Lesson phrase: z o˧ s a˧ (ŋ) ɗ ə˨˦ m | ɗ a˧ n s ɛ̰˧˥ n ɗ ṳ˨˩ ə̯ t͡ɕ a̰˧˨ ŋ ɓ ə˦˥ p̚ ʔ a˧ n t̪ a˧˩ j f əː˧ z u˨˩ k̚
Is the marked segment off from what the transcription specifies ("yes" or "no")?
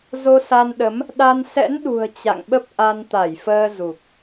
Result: yes